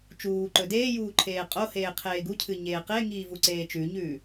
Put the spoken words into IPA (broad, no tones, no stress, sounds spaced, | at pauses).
t͡ʃ uː ǃ ɵ d eː j uː ǃʰ eː qʼ o h eː qʰ eː ɡ u cʰ ɨ ɲ eː q e ŋ iː v u ǀ eː t͡ʃ ʉ ɲ ʉː